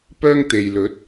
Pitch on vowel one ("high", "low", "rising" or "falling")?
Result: high